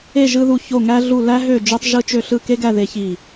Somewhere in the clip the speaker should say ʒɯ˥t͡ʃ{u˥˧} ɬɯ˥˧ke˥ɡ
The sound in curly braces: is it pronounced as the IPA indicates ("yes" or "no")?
no